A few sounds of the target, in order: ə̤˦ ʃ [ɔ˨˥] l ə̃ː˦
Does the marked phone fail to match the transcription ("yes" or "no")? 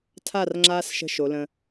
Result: yes